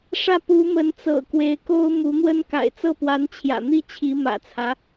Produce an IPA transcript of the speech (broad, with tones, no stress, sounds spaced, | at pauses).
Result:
ʂ ä˥˩ p u˧˥ m ə˧˥ n t͡s ɤ̰˨˩ k w e˧˥ ɪ̯ k o˥ ʊ̯ m u˧˥ n̪ w ə˥ n k a̰˨˩ ɪ̯ t͡s ɤ˥˩ p w a˧˥ n t͡ɕʰ j ä̰˨˩ n̪ i˥˩ t͡ɕʰ i˧˥ m ä̰˨˩ t͡sʰ ä˦